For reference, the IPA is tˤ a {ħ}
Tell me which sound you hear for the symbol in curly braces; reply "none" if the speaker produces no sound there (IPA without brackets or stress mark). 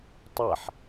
ħ